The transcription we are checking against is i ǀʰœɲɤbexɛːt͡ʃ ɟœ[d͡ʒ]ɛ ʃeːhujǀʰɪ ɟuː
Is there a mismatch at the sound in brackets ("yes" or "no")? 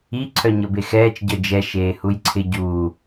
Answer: no